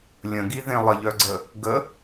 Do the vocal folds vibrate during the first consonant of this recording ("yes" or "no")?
yes